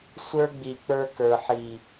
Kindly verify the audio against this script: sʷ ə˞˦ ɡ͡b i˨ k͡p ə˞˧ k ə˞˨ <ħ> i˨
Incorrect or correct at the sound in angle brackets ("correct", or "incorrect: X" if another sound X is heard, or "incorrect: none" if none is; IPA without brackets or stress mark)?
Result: correct